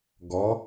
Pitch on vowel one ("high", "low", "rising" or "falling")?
rising